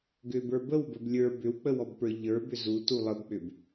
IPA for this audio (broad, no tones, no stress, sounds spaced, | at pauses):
ɡ ʏ b ə˞ b ə w b ə b lʲ ə˞ b ʏ w k͡p ə w ɔ b p ə˞ ʎ ə˞ b ʏ z u t u lˠ ə b k͡p ʏ b